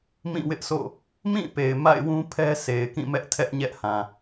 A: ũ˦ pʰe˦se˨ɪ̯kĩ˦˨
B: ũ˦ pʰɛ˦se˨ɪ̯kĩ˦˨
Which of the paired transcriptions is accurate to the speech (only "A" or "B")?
B